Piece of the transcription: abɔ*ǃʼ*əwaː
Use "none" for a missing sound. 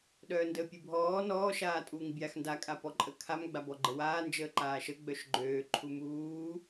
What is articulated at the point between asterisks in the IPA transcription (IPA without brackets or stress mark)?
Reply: ɡ͡ǃ